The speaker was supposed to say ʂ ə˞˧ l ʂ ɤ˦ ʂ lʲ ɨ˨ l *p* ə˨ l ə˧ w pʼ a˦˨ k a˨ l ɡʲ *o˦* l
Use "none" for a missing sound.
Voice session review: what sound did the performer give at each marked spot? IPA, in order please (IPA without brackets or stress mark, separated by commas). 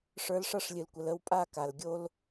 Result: kʷ, o˦